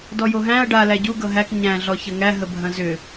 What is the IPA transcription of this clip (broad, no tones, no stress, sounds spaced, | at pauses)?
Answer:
d ɔ j o ɦ æ̃ ɐ̯ ɖ a l æ ɟ u ɡ ɤ ɦ æ k ɲ æ̃ ɮ ɔ ç ɐ ŋ æ ɦ ə bʱ ɐ̃ z ʏ